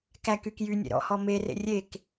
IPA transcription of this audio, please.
kækyk jynʲḛ ɾɔ̰hɔ merḛ rʲek

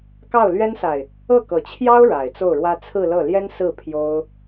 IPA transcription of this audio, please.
kɑ˥˩ʊ̯lɥɛ˥nsa˨ɪ̯ | ɤ˥˩kɤ˨˩t͡ɕʰjɑ˥ʊ̯ ɻa˨˩ɪ̯t͡so˥˩ʊ̯ɻwä˥ t͡sʰɹ̩˥˧lɤ˥˩ ljɛ˥nsɹ̩˥˩ pʰjo˥ʊ̯

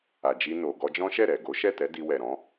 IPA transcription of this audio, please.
a˨d͡ʒi˧no˨ ɡɔ˧d͡ʒɔ̃˦ʃɛ˦˨ ɾɛ˨ ɡo˨˦ ʃɛ˦˨tɛ˨˦ di˧wɛ˨ɾɔ̃˨˦

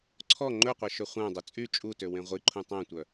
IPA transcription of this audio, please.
ǀʰɔ ŋ͡ǃɵqʷɛ ʃøχʷæ̃dˤu t͡sʼy t͡ʃʼutø wẽʁʷiǃʰũ tˤæ̃tʷœ

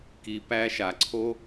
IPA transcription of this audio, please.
ki˨pæ˧ ʃa˨ǀʰo˦

